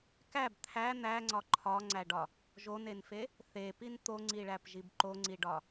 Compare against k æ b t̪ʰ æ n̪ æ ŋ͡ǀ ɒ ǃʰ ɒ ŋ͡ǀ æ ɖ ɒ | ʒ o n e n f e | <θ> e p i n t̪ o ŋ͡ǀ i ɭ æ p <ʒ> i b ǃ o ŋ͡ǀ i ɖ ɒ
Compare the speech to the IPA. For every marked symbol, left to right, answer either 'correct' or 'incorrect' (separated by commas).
correct, correct